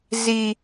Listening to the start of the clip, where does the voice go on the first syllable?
low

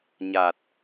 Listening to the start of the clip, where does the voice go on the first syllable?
low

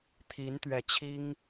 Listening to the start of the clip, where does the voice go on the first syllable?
rising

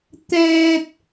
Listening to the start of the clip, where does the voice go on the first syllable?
high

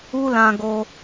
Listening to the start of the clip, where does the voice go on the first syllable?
high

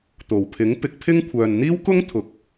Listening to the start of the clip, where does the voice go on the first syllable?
low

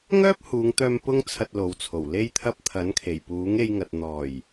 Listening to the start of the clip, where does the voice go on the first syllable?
high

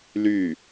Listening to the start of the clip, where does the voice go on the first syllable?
falling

